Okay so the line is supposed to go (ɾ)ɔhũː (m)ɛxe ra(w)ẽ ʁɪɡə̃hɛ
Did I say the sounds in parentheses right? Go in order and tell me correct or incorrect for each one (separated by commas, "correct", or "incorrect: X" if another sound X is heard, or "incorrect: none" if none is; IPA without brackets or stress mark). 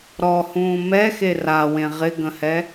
correct, correct, correct